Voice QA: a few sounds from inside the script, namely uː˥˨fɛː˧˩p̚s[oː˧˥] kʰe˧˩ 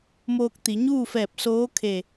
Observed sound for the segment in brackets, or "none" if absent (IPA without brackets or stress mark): oː˧˥